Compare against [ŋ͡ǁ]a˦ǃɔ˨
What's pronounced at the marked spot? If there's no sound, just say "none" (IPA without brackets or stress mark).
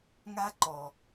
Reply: ŋ